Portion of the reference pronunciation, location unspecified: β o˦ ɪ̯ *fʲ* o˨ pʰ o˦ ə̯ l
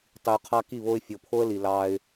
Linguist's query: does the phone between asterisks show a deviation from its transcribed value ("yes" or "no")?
no